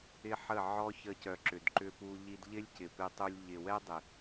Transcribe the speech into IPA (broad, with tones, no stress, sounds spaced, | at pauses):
ɪ˦ ħ ə˦˨ ʕ ɔ˦ ç ə˧ c œ˨ ǁ ʏ˨ d ǃ ʏ˧ p u˧ ʎ i˧ d ʎ ɪ˦ lʲ c ɪ˨ p ɪ˧ tˤ u˧ lʲ ʎ ɪ˨ w ɛ˦ dˤ ɪ˨